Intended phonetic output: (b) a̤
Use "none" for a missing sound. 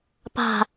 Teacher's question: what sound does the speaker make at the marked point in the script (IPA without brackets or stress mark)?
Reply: p